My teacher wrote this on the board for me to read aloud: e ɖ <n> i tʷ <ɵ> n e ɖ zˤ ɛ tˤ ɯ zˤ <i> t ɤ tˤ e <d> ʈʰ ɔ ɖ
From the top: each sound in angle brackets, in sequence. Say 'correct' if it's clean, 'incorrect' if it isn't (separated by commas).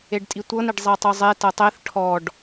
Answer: incorrect, incorrect, incorrect, incorrect